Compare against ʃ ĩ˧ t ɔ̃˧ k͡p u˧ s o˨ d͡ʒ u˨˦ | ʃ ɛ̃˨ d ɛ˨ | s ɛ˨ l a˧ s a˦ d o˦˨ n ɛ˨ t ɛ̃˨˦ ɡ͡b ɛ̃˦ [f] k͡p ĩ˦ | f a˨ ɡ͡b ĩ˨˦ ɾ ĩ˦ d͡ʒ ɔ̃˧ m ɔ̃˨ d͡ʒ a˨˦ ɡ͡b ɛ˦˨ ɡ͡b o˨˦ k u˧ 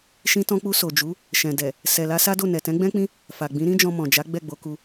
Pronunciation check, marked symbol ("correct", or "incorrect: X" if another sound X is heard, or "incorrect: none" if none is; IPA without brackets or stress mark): incorrect: none